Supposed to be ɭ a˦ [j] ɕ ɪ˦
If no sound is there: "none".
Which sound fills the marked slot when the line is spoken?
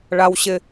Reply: w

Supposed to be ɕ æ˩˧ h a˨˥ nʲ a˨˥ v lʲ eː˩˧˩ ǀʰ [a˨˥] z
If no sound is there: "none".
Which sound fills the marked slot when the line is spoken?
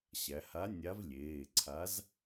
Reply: a˨˥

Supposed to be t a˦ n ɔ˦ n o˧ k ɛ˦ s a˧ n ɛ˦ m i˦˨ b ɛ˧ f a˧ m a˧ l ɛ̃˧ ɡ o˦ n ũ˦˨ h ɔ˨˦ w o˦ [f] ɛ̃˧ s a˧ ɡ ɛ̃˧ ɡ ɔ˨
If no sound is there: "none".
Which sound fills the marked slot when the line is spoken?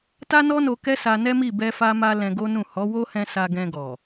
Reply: h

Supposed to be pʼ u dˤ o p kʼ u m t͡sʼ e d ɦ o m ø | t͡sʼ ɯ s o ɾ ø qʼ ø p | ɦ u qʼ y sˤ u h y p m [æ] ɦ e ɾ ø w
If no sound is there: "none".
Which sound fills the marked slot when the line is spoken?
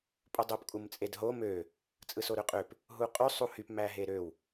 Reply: æ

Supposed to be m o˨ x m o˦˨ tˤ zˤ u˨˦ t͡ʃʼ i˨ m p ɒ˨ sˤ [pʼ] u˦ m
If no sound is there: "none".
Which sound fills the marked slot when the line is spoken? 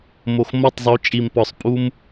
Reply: pʼ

